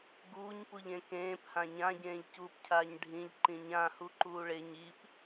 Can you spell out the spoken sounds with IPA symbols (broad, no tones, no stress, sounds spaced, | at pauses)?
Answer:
ɡ uː ɲ p u ʎ ẽ k ẽː p h ã ɲ ã ɟ ẽː ʎ c uː p cʰ aː ɲ ɖʱ ĩ ʎ ǃ ĩ ɲ ã h u ǃ uː ɭ e ɲ i p